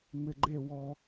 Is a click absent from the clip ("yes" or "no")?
no